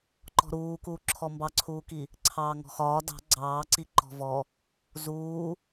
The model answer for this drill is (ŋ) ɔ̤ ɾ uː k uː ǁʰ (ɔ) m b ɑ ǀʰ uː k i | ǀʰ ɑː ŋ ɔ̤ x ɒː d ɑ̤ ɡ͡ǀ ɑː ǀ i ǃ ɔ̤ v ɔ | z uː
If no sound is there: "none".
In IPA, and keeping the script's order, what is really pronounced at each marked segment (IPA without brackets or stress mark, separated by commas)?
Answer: ǃ, ɔ